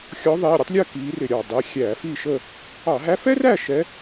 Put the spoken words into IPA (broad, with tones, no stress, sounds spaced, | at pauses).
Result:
xʲ ɔ˧˥ ðˤ iː˩˧˩ ɾʲ ʌ˥ tˤ lʲ əː˥˨ k iː˧˥ r ɪ˧˩˧ ɾʲ ɑ˩ dˤ i˩˧˩ xʲ æː˧˩˧ f iː˥˨ ʃ ə˥˨ | ɑ˧˩˧ ɦ æ˧˥ f ɛ˥ r æ˥˨ ʃ ɛ˧˥